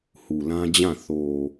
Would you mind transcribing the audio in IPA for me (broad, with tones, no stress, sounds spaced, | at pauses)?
h u˨ l ã˦ d͡ʑ ã˦˨ θ o˨